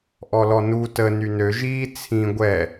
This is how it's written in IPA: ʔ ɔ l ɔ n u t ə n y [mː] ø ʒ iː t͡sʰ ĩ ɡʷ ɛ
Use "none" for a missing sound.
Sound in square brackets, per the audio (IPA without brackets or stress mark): n